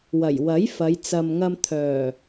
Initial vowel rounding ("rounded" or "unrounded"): unrounded